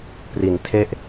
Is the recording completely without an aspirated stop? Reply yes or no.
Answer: no